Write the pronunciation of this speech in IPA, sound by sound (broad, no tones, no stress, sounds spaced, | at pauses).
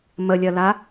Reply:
m ə lʲ ɜ l a